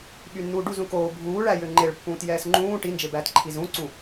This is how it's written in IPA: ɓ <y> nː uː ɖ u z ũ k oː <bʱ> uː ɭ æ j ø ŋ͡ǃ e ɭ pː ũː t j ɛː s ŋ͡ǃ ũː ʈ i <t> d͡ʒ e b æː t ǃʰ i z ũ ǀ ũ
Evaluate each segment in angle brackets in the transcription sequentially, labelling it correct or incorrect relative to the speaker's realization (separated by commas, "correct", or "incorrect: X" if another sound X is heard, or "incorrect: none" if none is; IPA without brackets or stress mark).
correct, correct, incorrect: n